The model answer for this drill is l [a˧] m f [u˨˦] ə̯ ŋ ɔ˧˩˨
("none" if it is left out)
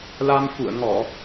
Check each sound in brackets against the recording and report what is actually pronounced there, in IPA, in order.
a˧, ṵ˧˨

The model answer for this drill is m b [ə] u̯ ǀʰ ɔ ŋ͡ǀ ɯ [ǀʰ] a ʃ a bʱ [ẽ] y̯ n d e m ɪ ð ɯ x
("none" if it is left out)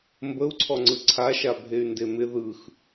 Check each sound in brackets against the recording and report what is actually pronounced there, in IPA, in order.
ə, ǀʰ, e

